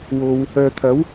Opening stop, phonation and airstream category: aspirated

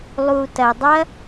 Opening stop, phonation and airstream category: plain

